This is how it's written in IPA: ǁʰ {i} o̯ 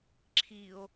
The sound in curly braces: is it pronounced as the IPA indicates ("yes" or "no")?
yes